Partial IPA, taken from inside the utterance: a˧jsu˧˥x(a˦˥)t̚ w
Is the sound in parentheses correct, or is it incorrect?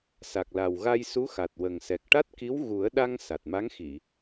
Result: incorrect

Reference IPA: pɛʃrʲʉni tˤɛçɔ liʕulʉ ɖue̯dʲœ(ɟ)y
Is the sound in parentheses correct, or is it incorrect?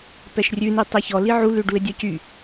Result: incorrect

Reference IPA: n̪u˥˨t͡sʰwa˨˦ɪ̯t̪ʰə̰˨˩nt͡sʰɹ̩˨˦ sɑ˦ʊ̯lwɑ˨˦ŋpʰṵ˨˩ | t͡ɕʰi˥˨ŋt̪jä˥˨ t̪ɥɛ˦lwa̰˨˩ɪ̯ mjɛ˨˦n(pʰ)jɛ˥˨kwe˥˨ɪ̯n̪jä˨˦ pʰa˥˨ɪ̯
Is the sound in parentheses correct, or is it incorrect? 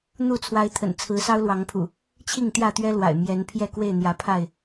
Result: correct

